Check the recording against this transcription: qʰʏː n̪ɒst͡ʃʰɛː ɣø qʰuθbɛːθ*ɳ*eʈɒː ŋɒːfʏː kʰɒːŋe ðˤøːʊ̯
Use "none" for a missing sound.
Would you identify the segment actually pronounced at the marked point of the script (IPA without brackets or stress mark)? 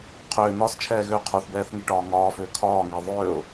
ŋ